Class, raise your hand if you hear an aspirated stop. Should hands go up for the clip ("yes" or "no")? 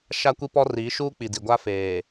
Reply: no